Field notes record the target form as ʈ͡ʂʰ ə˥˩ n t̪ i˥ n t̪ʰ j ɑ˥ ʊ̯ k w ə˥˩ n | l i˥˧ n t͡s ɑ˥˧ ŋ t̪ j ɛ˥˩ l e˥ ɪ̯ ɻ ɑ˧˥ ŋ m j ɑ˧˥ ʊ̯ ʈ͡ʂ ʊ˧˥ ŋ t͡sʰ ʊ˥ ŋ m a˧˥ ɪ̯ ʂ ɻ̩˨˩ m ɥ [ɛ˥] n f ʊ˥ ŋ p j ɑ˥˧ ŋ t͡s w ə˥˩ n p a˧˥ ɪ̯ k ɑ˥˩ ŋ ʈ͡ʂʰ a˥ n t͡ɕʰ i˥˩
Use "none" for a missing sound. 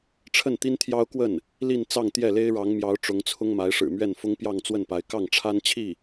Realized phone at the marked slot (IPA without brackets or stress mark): ɛ˥˩